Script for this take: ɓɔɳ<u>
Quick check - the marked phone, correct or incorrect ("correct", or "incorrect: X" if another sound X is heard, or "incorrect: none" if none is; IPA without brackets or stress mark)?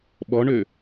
incorrect: ø